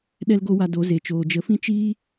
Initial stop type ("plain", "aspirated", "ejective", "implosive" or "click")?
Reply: implosive